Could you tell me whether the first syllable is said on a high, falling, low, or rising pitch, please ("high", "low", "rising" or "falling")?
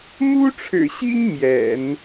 high